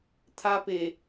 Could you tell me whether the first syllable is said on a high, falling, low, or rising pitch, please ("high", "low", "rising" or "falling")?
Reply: high